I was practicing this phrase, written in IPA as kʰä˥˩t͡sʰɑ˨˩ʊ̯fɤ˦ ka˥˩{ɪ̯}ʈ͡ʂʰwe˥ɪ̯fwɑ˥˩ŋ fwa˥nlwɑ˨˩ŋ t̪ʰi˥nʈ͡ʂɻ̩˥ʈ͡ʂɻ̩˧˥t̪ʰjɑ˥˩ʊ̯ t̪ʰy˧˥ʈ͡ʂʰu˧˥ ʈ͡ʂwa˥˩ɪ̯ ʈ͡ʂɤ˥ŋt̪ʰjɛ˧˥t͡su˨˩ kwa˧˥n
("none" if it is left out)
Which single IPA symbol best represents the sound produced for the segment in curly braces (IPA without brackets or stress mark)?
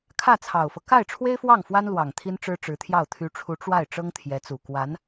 ɪ̯